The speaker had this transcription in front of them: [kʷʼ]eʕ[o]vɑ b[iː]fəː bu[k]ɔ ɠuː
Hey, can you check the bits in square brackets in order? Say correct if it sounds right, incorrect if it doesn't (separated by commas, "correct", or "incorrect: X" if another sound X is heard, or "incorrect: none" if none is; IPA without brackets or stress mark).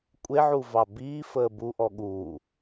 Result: correct, incorrect: u, correct, incorrect: ʔ